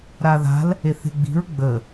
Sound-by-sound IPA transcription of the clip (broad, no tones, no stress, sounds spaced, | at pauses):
ɾ a ð a̤ l | e θ e̤ ɡ͡b i̤ ɹ ɡ͡b ə